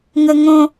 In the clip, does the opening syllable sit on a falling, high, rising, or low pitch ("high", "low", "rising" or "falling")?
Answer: high